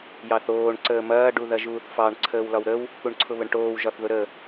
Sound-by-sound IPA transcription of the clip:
j ɑ θ oː ɳ ǀ əː m ɐː ɖ u ð ɐ ʒ uː θ f ɑ ɳ ǀʰ əː w l ɒ w ɾ ə w | k u ɳ ǀʰ ʊ β ə ɳ ʈ oː w ʒ ɒ θ ð ʊ ɾ ə

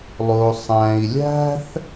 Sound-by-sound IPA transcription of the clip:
lˠ o˧ sˤ æ̃˧ i̯ lʲ æ̤˥ θ

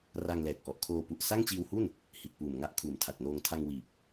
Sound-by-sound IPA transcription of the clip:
r a˧ ŋ l ɛː˨˩ k̚ ʔ ɔ˨˩ ʔ kʰ oː˧ p u˨˩ ʔ s a˥˩ ŋ t͡ɕ iː˧ w h u˥˩ n | h i˨˩ t̚ p uː˨˩ m ŋ a˥˩ ʔ kʰ uː˨˩ m tʰ a˨˩ t̚ n oː˧ ŋ tʰ a˧ ŋ w iː˨˩ p̚

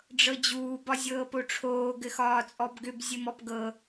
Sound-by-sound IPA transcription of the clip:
ɖ͡ʐ ɤ d͡ʑ uː b ɒ zʲ ɤː p o ʈ͡ʂʰ oː ɡ ɘ x ɒː t͡sʼ ɔ b ɡ ʏ b zʲ ɘ m ɔ p ɡ ɤ

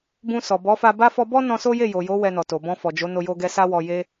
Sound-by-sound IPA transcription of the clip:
b ũ˧ s ɔ˨ b ɔ˨˦ f a˧ b a˦ f ɔ˧ b ɔ˦ n ɔ̃˧ s o˦ j e˦˨ j o˨ j o˨˦ w ɛ˧ n ɔ˨ t o˨ b ɔ̃˧ f ɔ˨ d͡ʒ o˨˦ n o˧ j o˧ ɡ ɛ˧ s a˦ w ɔ˧ j e˧

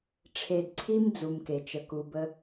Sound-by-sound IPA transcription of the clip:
ʈ͡ʂʰ e˨ d ǀʰ i˦ m d͡z u˨ m k e˩ t͡ʃ ə˨ k u˨ b ə˦

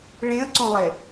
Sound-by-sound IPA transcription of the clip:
ɭ ẽ ə̯ ǀ õ lˠ e

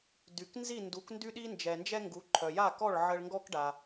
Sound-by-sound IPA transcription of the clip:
d y˩ k n z i˥˩ n d u˩˥ k n d y˥ ɗ i˥ n d͡ʒ ɛ˩ n d͡ʒ ɛ˥ ŋ ɡ u˩˥ ǃʰ œ˩ j a˥˩ k ɔ˥˩ ɭ ʕ ə˧ ɭ ŋ ɡ ɔ˥ k ɖ a˩

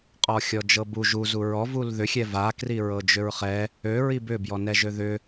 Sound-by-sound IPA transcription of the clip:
qʼ ɔ xʲ ɔ d͡ʒ ɤ b u ʒ u z u ɹ ɔ v u l ð ʏ xʲ ɛ v a k r i ɹ ɤ d͡ʒ ʏ ɹ χ ɛ | ø ɹ i b ʏ b j ɔ n ɛ ʒ ø ð ʏ

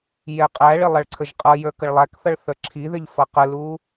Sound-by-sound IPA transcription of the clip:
j ɛ qʼ æ ɭ ɪ lˠ ʌ ɭ ǀʰ ə ʒ qʼ ʌ j ə˞ k ə ɭ lˠ æ k θ ʌ ɭ θ ə˞ ǁʰ i ð ɪ ʎ f ʌ q ə l u

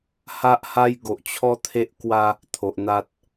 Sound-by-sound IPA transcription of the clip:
h a˦ ʔ h a˦ j ɡ o˨ ʔ t͡ɕʰ ɔ˦ t̪ʰ e˦ ʔ k w a˦ | t̪ʰ o˨ ʔ n̪ a˦ t̚

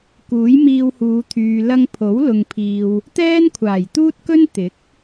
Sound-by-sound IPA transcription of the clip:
k uː˨˥ j m iː˧ w h uː˨˧ t̪ʰ yː˨ l ɐ˧ ŋ pʰ o˨˥ w l ʊ˨ ŋ pʰ iː˨ w | t̪ ɛː˥ n kʷʰ aː˨˩ j t̪ uː˥ t̚ k ɵ˥ n t̪ ɪ˨˥ k̚

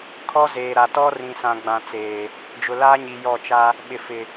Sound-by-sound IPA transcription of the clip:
kʰ ɔ˦ z eː˨ ɾ a˨ t ɔ˦ r ĩ˨ s ã˨ ɡ͡b ã˨ t͡s eː˨ | d͡ʒ ʊ˨ l aː˦ ɲ i˨ j ɔ˦˨ t͡ʃ a˦ | ɓ ɪ˨ f ɪ˨

